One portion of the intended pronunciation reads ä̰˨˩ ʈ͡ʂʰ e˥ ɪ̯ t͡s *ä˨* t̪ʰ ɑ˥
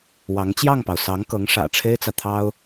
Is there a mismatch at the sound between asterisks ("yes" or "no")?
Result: no